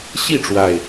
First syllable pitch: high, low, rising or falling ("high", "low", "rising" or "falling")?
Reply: falling